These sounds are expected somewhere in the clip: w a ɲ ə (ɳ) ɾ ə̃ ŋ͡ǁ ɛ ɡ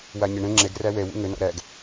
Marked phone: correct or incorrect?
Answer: correct